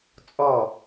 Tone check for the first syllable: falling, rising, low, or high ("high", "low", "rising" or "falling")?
falling